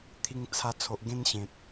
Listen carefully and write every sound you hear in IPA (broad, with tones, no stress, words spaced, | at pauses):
t̪ʰi˧ŋt͡sʰa˧ t͡sʰo˨ʔɡẽ˧nɕẽ˨t̚